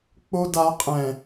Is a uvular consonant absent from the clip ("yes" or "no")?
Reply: no